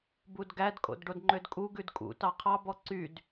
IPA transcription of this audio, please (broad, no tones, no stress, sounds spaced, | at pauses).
b u d ɡ æ d kʼ o̰ d ɖ o d ŋ͡ǃ ø d kʼ u ɡ ʉ d kʼ ṵ t ɑ qʰ ɑ b ɔ ǀ y d